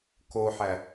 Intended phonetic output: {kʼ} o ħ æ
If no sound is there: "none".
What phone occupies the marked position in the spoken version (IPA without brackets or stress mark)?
k